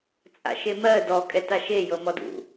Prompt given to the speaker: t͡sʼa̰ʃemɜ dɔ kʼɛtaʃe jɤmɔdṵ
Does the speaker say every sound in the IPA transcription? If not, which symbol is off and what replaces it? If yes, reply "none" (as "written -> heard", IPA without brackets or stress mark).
none